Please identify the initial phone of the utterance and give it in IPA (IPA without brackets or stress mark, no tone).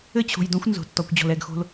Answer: ɘ